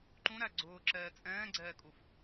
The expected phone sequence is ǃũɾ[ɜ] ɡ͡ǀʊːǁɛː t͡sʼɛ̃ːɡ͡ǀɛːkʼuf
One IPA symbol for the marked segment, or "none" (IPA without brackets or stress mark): æ